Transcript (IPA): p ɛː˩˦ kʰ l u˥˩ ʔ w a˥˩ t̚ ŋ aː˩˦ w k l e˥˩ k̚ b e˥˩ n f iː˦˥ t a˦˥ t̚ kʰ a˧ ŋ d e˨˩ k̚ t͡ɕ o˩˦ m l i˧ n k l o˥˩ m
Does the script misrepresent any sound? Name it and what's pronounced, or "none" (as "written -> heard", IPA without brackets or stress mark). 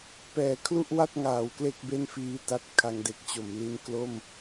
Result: none